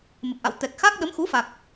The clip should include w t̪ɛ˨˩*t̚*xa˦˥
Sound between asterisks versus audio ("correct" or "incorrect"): incorrect